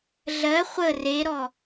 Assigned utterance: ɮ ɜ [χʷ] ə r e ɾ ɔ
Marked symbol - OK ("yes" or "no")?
yes